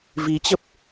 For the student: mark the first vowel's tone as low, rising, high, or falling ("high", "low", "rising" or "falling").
rising